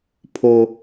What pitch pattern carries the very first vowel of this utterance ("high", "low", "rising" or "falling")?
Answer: high